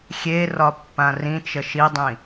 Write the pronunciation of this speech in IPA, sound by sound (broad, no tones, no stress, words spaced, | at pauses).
xʲerɒ pːãrĩt͡ʃə ʃidˤĩ